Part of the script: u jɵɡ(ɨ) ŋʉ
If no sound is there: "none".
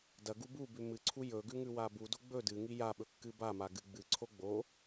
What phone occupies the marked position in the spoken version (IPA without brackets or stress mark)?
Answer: ʉ